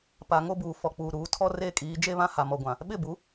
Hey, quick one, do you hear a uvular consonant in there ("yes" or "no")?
no